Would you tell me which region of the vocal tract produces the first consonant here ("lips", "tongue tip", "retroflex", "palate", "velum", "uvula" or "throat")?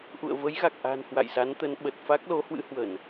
throat